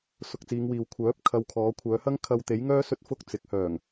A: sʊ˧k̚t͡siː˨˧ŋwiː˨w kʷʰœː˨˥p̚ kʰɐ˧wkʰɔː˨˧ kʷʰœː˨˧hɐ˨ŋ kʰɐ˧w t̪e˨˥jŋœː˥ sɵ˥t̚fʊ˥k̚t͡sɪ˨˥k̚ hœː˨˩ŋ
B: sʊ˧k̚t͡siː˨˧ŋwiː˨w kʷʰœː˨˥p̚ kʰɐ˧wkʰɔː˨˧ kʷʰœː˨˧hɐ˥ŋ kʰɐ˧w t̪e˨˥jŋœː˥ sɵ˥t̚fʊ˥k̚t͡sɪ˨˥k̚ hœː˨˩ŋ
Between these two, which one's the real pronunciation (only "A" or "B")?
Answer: B